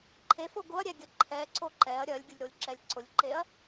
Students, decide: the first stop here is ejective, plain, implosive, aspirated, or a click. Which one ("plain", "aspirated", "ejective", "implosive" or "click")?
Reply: click